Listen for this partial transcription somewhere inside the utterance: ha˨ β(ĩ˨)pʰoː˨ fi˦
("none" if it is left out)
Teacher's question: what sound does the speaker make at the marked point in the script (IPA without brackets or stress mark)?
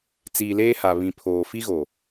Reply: ĩ˨